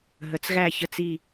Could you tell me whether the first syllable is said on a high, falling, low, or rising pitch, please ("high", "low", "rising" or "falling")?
rising